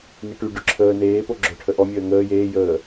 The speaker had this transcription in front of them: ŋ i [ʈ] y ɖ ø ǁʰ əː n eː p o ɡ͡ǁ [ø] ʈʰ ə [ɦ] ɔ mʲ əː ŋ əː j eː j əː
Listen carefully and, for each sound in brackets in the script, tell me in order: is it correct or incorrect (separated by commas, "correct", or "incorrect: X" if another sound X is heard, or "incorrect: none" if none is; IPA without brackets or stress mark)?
correct, incorrect: œ, incorrect: ʔ